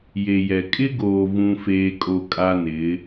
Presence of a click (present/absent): absent